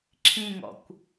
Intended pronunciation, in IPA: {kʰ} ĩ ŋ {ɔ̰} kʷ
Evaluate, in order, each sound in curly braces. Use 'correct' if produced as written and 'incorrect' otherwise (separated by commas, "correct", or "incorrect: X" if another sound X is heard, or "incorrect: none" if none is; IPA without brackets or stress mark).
incorrect: ǁʰ, correct